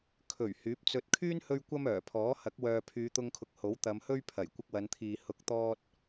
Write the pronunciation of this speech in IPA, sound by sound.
kʰ ɵ˨˩ ɥ h yː˨˥ p̚ t͡s ɵ˧ t̚ kʰ yː˥ n h ɵ˧ ɥ kʷ ɐ˥ m œː˨˩ pʰ ɔː˨˥ h ɐ˨˥ k̚ w œː˨ pʰ yː˨˧ t̪ ʊ˧ ŋ kʰ ʊ˨ k̚ h o˨˥ w t̪ ɐ˨˧ m h ɵ˥ ɥ pʰ ɐ˨˩ j kʷ ɪ˧ k̚ w ɐ˨˧ n t̪ʰ iː˨ h ʊ˨˥ k̚ t̪ ɔː˧ t̚

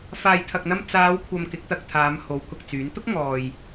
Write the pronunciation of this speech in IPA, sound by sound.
f aː˨ j t̪ʰ ɐ˨ k̚ n̪ ɐ˧ m t͡s aː˨˧ w kʷʰ ɐ˨ m k ɪ˨˥ k̚ t̪ ɐ˧ k̚ t̪ʰ aː˨˧ m h o˨˥ w k ʊ˨ k̚ t͡s yː˨˥ n t̪ ʊ˥ k̚ ŋ ɔː˨ j

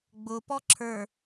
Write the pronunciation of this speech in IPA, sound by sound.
ɡ͡b ʊ p ɔ ǁʰ ə˞

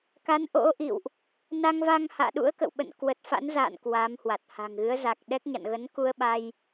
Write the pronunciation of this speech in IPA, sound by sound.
k a˨˦ n ʔ o̰˧˥ ʔ ḭ˧˨ w ʔ | n a˧ ŋ v a˧ ŋ h a̰ː˧˨ ɗ ṵ˧˥ ə̯ k ə̰˧˨ w ɓ ə̰˧˨ n k w ə˨˩ t̚ f a̰˧˥ n z a̰ː˧˨ n k w a˨˦ m h w a˨˩ t̚ h a̤˨˩ ŋ ɣ ɨ˨˦ ə̯ z a˨˩ k̚ ɗ ɛ˦˥ k̚ ɲ a̰˧˨ n ɣ ə˨˦ n k u˧ ə̯ ɓ a˧ j

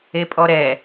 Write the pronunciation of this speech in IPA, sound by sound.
e pʼ ɔ ɾ ɛ

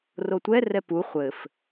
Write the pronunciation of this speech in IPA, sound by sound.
r o tʷ ɛ r ɛ p u χʷ ɘ f

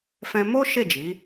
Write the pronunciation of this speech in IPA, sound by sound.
f ɛ̃˧ m o˦ ʃ e˦˨ d͡ʒ i˨˦

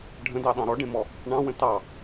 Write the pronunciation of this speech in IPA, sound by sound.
ɖʱ ə̃ d ɑ ɗ ɑ̃ ɾ ɔ ɖ ẽ m ɔ | ɳ ɑ̃ w ə̃ t ɑ

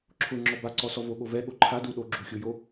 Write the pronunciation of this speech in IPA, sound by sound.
ǁʰ ʊ ŋ͡ǁ ɔ b a ǀ ɔ s ɔ v o ɠ o v ɛ ɠ o ǃʰ a d u ɗ o ɡ͡ǁ u xʲ ʊ j o

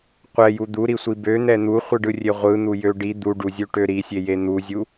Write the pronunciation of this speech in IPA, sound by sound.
qʷ ɛ j u d̪ u ɾ i sʷ i b ø n̪ ɛ n̪ u χʷ ɯ ɖ ɯ rʲ e ʁʷ ɯ n̪ u j ø ɖ i d̪ u ɖ u zʲ ø ʈ ø ɾ i sʲ e j e n̪ u zʲ u

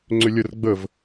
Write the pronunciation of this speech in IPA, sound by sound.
ŋ͡ǀ ʏ lʲ ə r ɡ͡b ə v

